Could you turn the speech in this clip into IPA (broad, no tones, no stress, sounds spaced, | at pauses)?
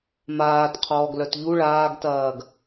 m aː t qʰ ɔː ɡ l œ t ʎ u ɭ aː ɡ t ɐː ɡ